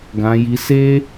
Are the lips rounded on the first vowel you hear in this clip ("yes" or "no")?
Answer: no